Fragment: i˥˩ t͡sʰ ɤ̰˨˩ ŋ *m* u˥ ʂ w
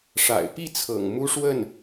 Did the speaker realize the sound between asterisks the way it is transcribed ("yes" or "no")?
yes